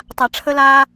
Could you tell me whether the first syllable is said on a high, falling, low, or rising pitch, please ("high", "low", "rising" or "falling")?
low